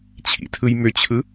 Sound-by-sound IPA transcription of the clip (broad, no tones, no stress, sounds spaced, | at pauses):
t͡ɕʰ ḭ tʰ ɯ j m ʏ t͡ɕʰ ɯ